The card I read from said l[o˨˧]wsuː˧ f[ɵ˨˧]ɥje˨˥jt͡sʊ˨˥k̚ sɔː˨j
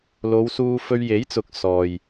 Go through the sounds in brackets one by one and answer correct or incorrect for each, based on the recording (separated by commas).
correct, incorrect